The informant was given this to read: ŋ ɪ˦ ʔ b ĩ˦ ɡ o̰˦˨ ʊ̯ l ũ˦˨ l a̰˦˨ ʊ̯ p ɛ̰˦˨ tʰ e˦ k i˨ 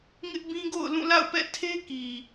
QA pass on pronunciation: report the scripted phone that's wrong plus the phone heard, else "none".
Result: none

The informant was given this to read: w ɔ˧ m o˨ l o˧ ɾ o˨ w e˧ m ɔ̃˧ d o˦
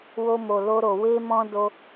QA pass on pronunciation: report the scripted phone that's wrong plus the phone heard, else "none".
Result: ɔ˧ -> o˧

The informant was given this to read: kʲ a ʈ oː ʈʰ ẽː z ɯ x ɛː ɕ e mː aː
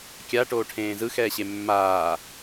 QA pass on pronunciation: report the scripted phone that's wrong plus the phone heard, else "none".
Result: none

